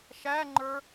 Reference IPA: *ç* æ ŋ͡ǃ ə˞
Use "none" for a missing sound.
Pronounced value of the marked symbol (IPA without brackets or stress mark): ʃ